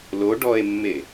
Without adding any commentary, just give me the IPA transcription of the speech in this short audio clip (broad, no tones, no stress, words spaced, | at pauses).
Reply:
lo ɖɔe̯mːe